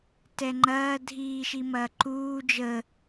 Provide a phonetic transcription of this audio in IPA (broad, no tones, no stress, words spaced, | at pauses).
tɛŋ͡ǃɐː dʱiːʃimɐː ǃuː d͡ʒə